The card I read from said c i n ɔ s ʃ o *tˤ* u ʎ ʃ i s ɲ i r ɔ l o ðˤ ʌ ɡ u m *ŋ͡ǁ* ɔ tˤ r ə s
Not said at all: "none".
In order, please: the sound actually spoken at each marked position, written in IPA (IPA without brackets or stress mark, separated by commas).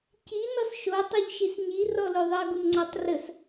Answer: tˤ, ŋ͡ǀ